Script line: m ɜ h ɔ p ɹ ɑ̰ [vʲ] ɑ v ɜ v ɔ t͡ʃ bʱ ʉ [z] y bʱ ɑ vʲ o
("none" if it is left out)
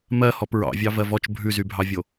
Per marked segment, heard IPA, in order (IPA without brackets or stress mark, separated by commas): vʲ, z